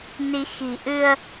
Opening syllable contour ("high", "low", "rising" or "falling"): rising